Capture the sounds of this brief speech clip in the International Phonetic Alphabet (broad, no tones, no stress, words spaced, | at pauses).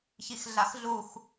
çixɮaxɮux